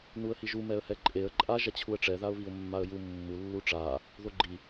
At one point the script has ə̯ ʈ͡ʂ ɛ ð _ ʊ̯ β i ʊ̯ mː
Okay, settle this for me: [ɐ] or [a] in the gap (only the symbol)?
a